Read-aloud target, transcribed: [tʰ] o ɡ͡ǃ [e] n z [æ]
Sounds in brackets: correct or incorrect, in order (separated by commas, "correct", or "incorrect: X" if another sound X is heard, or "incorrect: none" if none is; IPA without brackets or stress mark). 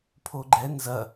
incorrect: pʰ, incorrect: ɛ, incorrect: ɐ